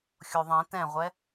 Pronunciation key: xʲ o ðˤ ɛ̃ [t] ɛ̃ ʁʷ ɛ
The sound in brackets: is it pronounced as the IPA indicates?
yes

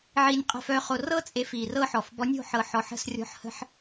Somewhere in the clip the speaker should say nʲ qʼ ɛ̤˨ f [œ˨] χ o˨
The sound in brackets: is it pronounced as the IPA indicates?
yes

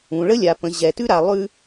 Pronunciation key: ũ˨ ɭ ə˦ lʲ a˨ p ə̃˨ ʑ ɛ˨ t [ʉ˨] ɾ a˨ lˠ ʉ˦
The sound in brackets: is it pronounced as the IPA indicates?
no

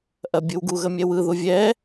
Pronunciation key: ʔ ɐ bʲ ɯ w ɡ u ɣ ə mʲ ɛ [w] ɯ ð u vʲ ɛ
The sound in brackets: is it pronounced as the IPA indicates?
yes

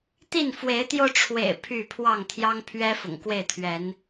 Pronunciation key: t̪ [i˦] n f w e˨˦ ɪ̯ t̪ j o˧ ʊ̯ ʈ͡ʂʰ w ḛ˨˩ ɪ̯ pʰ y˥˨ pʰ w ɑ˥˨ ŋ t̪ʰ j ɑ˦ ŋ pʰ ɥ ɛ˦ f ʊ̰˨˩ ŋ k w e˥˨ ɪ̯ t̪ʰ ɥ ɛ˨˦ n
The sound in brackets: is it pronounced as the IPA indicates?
no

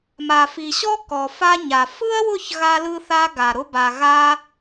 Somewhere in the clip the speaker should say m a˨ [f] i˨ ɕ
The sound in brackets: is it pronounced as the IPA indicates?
yes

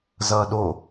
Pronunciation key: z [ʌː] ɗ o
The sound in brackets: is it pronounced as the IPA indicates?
yes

